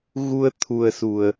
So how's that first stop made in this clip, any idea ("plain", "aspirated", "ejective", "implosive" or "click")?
aspirated